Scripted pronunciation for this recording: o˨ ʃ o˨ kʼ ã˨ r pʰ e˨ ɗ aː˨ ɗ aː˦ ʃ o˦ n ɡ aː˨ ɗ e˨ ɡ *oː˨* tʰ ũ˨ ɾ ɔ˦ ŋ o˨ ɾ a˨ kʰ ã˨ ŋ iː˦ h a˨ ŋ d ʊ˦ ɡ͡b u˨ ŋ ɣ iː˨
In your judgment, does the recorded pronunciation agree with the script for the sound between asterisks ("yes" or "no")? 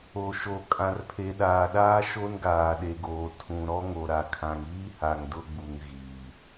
yes